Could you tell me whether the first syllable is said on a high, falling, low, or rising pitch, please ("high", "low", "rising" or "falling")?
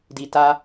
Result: low